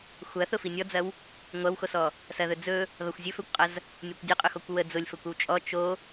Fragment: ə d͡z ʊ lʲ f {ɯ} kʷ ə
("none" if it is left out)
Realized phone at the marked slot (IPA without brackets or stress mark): ə